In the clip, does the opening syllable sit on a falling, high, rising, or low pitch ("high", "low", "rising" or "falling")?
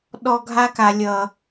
low